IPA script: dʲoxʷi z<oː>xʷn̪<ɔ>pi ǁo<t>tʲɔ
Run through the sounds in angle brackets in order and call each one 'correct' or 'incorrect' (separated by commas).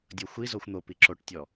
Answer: incorrect, incorrect, incorrect